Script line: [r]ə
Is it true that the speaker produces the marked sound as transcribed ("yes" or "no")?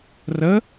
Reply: yes